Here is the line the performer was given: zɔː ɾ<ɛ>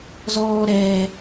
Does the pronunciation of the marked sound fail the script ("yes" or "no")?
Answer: yes